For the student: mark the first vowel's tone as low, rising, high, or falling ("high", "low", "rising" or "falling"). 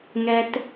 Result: high